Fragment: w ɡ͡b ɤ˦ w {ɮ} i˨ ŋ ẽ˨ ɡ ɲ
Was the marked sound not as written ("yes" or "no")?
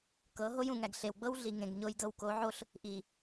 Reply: no